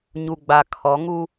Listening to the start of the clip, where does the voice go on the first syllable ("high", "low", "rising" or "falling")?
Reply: low